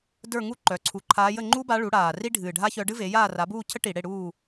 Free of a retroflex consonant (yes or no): no